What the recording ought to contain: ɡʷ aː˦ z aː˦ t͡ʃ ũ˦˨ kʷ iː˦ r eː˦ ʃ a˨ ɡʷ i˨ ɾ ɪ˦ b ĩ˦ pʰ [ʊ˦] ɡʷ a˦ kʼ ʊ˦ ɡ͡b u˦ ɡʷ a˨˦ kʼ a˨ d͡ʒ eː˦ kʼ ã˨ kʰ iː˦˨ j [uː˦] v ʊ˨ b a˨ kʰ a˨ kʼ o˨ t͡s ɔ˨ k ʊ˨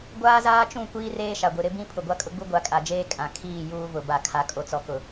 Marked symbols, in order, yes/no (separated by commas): no, yes